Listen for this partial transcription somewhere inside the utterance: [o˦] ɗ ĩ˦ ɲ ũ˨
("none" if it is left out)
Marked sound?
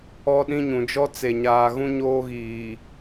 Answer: ɔ˦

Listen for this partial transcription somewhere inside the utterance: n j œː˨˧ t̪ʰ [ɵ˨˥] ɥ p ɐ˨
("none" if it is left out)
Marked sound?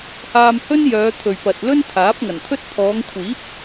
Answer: ɵ˨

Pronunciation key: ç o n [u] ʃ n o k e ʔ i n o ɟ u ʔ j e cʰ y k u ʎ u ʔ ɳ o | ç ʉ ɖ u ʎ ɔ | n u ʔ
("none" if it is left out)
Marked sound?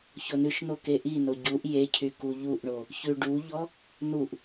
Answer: ʉ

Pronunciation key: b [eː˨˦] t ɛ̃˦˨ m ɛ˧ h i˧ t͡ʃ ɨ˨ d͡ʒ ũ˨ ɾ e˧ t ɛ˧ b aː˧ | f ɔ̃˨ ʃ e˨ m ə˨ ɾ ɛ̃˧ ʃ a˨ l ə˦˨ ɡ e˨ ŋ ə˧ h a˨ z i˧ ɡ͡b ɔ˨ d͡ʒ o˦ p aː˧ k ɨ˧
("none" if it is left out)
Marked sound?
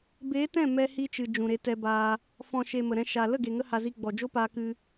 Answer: eː˨˦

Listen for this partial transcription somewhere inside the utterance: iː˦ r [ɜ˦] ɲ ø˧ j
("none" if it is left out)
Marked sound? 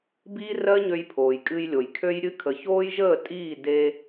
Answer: ɜ˦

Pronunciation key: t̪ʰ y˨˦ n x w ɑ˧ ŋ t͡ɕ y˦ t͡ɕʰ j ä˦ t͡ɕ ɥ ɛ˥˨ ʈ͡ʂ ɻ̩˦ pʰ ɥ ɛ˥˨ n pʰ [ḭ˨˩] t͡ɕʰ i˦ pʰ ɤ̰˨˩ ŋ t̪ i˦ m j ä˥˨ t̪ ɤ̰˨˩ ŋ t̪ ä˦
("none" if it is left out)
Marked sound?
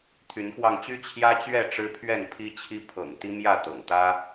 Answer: i˦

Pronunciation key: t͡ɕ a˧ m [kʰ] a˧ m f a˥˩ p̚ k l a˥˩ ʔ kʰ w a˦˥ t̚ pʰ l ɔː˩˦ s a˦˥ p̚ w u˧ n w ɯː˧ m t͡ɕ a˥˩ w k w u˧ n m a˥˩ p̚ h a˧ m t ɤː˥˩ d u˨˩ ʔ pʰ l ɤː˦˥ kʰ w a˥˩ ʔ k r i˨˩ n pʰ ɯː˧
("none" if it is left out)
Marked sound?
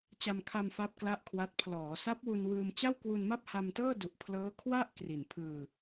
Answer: kʰ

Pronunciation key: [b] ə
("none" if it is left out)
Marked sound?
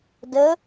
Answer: d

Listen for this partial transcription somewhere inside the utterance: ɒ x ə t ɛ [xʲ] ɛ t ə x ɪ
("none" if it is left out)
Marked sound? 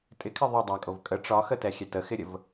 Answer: xʲ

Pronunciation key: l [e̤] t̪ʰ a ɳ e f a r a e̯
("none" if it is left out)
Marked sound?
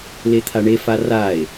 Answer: e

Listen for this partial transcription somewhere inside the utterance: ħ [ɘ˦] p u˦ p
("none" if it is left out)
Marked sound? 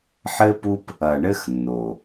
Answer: ɘ˦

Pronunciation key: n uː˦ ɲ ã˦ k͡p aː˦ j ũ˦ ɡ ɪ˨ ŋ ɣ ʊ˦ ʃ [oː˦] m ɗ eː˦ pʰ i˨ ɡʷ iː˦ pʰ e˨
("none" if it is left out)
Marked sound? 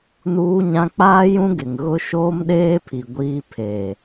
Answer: oː˦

